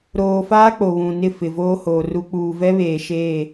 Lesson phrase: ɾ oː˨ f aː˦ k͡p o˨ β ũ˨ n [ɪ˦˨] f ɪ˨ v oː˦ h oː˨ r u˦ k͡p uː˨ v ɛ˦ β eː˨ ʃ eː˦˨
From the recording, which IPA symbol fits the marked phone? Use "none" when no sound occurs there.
ɪ˦˨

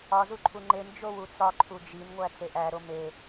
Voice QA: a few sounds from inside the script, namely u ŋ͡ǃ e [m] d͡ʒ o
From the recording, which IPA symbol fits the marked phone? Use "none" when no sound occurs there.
m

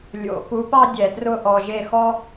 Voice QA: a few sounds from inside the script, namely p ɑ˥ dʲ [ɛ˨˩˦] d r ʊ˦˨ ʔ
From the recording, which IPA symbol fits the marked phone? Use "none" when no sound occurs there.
ɛ˨˩˦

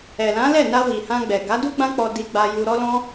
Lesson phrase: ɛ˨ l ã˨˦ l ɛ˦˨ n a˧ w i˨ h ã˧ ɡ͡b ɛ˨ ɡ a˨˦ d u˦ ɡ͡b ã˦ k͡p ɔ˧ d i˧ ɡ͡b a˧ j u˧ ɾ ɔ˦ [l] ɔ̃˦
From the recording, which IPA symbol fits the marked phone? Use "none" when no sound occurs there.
l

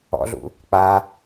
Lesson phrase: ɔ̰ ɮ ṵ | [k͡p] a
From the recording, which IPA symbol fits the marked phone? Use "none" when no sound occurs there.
k͡p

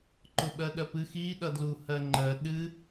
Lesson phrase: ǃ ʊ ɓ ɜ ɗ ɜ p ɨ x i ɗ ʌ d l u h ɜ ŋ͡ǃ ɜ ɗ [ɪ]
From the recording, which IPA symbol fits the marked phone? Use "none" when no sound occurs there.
ɨ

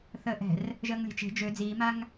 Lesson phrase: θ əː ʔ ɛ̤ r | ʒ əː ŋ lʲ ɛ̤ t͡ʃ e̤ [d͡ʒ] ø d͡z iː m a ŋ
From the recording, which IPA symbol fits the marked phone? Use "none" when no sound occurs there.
d͡ʒ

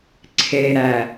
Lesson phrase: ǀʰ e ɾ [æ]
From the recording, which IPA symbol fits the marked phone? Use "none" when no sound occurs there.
æ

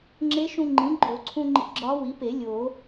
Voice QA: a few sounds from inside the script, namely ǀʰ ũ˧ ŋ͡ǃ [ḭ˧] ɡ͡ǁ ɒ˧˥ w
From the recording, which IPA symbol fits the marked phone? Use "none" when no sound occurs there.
ḭ˧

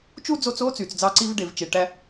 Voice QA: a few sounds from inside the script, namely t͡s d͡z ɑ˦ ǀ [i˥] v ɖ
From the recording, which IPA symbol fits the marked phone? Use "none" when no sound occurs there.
i˥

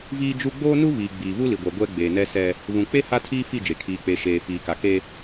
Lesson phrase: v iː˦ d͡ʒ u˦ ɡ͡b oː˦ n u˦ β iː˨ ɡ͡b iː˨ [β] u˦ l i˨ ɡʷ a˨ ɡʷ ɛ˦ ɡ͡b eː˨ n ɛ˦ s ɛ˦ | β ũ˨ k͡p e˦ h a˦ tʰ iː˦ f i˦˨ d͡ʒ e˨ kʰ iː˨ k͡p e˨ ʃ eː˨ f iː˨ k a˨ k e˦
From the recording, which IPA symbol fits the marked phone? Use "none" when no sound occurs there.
β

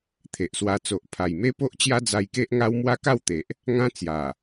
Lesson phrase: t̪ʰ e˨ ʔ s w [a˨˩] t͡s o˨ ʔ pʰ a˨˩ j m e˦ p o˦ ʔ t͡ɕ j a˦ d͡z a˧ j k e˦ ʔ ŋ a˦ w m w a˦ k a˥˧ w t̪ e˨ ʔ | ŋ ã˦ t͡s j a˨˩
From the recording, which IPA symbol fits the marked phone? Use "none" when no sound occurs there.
a˧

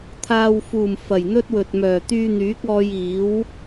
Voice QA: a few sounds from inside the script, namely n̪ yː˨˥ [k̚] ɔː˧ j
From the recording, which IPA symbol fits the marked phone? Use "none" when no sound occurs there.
k̚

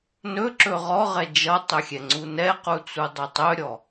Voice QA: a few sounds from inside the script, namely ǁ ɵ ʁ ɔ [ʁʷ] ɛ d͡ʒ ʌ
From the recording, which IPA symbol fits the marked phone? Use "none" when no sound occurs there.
ʁ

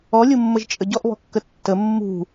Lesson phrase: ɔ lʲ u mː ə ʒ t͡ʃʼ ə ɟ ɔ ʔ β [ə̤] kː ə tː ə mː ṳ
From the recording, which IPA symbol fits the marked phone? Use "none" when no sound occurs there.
ɔ̤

